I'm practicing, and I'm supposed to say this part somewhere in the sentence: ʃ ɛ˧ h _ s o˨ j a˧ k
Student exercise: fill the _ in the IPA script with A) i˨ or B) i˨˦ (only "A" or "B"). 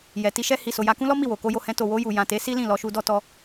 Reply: A